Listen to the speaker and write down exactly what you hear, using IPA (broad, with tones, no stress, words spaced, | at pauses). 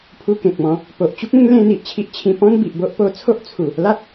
pʰu˧kẽ˨k̚mɔ̃˨˦ | po˨ʔt͡ɕu˦k̚ẽ˦ŋ lẽ˦n̪i˨ʔt͡ɕʰi˦ʔ t͡ɕʰĩ˧pɔ̃˦n bi˨ʔbo˦ʔ po˧ t͡sʰo˦ʔt͡sʰu˨˩ | la˦t̚